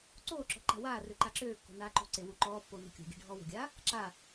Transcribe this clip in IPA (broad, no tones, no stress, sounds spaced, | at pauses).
ǀ oː ǁ ɔ̤ ǃ a̤ w aː r ø ǃ a ǁ øː kː o̤ n aː ǃ o̤ ǀ e w u ǃ ɔː pː o n o̤ kʲ o̤ ɡʲ e̤ ɖʱ ɔː w o̤ ɡʲ aː | ǁ a